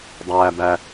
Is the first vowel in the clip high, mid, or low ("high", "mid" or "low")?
low